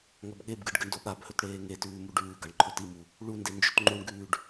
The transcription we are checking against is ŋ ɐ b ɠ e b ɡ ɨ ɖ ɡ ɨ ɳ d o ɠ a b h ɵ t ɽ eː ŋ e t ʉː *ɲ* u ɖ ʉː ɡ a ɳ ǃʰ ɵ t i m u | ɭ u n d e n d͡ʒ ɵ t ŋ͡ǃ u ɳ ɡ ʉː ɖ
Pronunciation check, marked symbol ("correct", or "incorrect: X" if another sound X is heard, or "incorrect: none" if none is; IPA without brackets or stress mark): incorrect: m